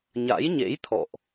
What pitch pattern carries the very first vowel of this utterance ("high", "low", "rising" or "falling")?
rising